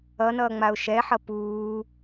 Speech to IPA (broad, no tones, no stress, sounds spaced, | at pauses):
ʌ n ʌː ŋ͡m a ʊ̯ ʃ ɛ ħ ʌ p uː